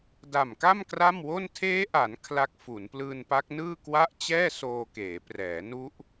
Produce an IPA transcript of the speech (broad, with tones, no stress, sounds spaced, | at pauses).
d a˨˩ m k a˥˩ m k r a˥˩ m w o˥˩ n tʰ eː˦˥ ʔ a˩˦ n kʰ l a˦˥ k̚ f u˩˦ n p l ɯː˧ n p a˦˥ k̚ n ɯː˥˩ k w a˥˩ ʔ t͡ɕ ɛː˥˩ s oː˧ k eː˩˦ p r ɛː˩˦ n u˦˥ ʔ